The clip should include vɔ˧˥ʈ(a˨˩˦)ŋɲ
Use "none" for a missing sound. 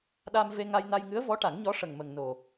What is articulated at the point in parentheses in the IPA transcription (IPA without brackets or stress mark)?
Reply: a˨˩˦